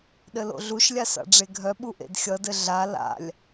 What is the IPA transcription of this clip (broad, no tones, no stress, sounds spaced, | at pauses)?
ɗ ɘ l o̰ ɮ u ʃ lʲ a s a̰ ɖ͡ʐ e ɡʱ œ ɓ u ʔ ḛ d xʲ ʌ d ɘ ɮ a l a̰ lʲ